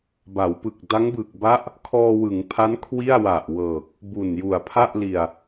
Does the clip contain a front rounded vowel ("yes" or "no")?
no